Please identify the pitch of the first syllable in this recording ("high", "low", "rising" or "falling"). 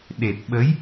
low